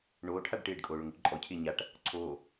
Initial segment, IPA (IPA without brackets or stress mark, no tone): ɳ